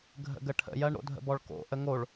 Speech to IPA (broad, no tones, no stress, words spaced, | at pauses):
ɡʱə̰ɡəʈʰə̰jɜɳ ɾo̰dʱə̰bɔɭko̰ ʔəŋoɭ